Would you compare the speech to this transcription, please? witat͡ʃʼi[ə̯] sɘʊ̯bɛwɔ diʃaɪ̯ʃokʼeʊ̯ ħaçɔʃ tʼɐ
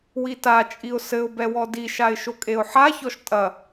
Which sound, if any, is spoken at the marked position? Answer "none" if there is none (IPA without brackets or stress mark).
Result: ʊ̯